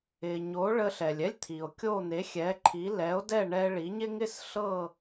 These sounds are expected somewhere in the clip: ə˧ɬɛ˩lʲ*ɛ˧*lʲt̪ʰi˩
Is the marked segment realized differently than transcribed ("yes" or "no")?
yes